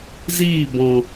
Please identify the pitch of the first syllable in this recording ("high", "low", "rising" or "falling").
falling